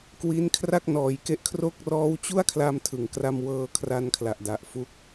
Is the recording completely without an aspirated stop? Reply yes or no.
no